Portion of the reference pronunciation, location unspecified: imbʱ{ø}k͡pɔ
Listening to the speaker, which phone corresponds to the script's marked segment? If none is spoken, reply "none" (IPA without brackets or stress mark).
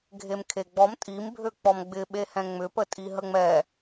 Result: ø